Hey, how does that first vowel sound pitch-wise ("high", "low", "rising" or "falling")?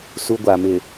high